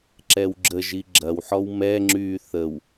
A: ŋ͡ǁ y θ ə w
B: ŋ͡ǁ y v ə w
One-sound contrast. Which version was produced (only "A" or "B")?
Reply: A